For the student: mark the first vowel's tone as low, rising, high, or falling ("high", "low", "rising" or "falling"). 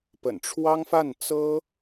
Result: low